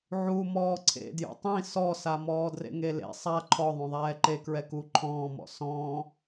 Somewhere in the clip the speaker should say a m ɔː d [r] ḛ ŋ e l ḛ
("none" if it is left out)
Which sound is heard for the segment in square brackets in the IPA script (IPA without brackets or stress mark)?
r